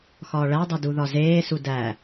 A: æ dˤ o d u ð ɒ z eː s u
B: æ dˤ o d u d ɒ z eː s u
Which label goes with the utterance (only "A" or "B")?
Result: A